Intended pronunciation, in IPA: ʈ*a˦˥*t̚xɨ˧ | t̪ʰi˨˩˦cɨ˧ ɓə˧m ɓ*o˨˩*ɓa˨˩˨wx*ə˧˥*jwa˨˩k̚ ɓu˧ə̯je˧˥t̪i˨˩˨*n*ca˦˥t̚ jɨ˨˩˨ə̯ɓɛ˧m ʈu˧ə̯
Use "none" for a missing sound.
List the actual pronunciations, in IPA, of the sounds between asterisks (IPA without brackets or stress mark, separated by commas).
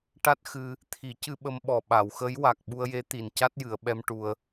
a˦˥, ɔ˨˩, ə˧˥, n